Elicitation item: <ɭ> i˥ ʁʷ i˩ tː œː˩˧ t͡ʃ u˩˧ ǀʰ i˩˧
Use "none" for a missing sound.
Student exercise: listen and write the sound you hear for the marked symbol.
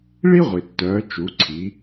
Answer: ɭ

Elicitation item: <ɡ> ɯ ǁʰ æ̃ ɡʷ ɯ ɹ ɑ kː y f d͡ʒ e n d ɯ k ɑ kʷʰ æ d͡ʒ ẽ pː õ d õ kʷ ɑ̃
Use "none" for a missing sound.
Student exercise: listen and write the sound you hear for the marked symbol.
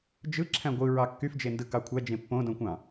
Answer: d͡ʒ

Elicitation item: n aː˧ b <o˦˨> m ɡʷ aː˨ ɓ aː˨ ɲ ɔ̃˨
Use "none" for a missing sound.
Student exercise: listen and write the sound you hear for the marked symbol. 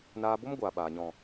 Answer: o˦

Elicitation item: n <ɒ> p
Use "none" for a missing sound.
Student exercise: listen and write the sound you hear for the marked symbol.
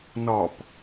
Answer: ɒ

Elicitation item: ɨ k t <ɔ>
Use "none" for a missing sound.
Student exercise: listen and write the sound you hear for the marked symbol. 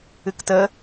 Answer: ə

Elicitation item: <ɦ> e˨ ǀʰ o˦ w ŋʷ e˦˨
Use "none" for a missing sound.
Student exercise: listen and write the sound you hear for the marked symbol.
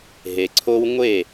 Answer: ɦ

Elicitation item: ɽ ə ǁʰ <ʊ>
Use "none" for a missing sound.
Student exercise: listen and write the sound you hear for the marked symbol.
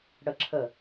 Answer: ə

